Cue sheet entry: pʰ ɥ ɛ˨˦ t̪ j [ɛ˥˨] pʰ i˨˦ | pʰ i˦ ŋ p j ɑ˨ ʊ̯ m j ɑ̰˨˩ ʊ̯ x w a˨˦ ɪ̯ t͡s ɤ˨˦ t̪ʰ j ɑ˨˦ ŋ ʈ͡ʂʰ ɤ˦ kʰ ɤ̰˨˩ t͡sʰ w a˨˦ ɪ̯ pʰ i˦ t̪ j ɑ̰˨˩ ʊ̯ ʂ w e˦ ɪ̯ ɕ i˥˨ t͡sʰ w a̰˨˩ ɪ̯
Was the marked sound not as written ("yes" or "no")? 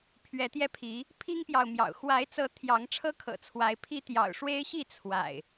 yes